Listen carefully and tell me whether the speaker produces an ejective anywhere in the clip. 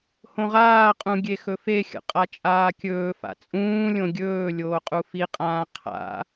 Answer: yes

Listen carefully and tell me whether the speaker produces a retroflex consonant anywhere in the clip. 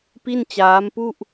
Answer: no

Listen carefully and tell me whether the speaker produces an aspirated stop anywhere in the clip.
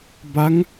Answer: no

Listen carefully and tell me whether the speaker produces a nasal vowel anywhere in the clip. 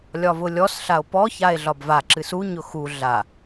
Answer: no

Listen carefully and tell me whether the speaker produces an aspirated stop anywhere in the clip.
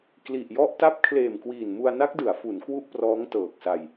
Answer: yes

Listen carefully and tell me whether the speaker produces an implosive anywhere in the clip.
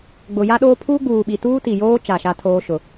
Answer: yes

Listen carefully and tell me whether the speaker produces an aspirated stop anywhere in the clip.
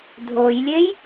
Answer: no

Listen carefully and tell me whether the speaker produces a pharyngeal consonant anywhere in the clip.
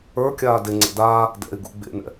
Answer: no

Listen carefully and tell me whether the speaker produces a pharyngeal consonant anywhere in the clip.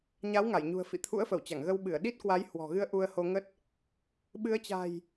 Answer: no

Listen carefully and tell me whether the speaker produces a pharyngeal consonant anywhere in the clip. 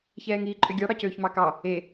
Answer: no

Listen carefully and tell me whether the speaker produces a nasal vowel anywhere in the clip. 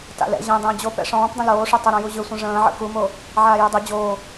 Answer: yes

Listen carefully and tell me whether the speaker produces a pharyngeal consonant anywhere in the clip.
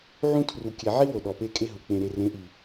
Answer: yes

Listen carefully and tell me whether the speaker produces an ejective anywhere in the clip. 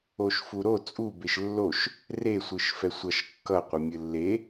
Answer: yes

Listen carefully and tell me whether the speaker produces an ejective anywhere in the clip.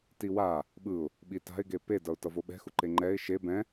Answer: no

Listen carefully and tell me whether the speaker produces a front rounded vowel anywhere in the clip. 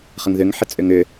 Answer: yes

